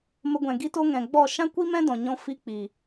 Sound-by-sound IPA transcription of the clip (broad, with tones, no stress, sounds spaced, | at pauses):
m ə˧ ɡʷ ɛ̃˨ ɡ i˦ t o˦ ŋ ɛ̃˨ ɡ͡b ɔ˦˨ ʃ ã˦ kʷ i˦ m ɛ̃˦ d ɔ̃˨ ɲ ɔ̃˦ f i˦ k͡p i˨